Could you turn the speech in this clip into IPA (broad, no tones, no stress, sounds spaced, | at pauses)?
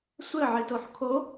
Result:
sʷ ɘ ʕ i t o ħ kʰ o